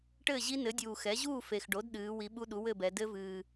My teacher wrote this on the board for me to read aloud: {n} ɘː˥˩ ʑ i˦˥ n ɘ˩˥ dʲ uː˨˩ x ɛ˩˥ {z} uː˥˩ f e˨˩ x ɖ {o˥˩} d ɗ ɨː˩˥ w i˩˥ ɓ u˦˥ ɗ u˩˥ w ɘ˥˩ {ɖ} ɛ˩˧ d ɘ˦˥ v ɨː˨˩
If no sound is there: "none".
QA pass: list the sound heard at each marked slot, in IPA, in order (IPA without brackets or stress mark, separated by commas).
ʈ, ʑ, o˩˥, b